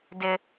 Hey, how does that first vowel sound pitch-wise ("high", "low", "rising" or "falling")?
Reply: high